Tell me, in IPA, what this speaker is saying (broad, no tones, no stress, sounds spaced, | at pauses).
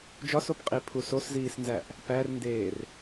d͡ʒ ɒ s o p qʼ i pʰ u s o s z iː s n z æ ʔ | p æ r n d eː r